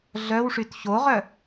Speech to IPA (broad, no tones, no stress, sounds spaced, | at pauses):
ɮ œ w ʂ y t ç o ʁ œ